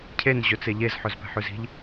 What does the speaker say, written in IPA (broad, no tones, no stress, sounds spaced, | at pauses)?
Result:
cʰ e n ʑ ɵ t͡s e ʎ e z ħ ɵ z p ɛ̤ ħ ʉ z i̤ ʎ